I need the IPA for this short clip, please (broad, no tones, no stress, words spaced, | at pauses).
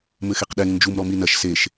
mɘxeqɗɛŋ nd͡ʒumɾɔmi nɐʃ seʃ